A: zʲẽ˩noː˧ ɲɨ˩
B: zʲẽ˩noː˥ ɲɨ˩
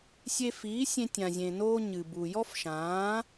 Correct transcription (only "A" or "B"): A